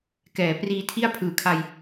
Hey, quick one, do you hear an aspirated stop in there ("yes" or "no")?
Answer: yes